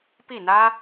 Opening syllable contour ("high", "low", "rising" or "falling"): falling